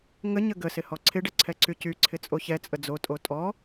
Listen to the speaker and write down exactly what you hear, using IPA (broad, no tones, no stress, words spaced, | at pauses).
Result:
ŋə ɲəɡəsɪ hɔǀʰɪɖə ǀʰɛǀycyǀʰɪ t͡sʼoçɛt͡sʼə d͡zotʼo tʼɔ